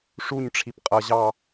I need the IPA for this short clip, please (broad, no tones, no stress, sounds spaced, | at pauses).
ʂ u ɲ ʈ͡ʂʰ i p qʼ ʌ ʑ ɑ